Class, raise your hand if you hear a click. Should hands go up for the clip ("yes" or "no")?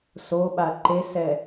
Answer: yes